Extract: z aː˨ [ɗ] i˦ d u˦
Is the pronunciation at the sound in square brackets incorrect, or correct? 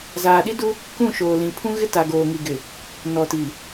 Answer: correct